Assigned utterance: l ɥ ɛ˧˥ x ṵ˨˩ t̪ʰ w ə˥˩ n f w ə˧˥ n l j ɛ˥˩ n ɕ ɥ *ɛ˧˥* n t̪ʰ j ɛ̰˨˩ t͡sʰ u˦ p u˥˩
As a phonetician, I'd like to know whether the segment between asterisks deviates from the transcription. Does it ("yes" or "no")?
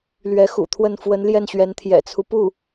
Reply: no